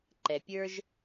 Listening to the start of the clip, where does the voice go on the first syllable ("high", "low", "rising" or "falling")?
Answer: low